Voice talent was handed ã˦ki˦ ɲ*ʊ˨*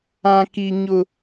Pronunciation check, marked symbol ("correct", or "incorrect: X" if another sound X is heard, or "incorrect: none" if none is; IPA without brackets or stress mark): incorrect: ʊ˦